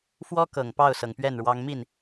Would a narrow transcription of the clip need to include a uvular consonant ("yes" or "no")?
no